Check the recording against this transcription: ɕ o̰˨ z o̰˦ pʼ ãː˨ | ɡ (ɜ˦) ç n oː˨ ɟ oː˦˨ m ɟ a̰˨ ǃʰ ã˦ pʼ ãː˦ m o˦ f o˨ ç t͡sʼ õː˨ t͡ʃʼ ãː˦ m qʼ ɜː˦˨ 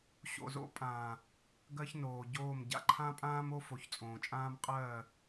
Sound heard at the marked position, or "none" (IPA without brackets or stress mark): ɜ˦